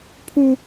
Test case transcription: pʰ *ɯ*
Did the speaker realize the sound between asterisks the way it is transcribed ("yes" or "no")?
no